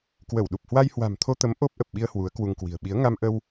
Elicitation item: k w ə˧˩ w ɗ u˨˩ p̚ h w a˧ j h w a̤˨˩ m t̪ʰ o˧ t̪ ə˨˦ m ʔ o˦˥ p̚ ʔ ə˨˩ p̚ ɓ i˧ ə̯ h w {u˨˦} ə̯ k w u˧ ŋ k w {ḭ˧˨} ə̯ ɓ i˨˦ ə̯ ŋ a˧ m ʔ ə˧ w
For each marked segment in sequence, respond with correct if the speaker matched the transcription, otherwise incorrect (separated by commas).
correct, incorrect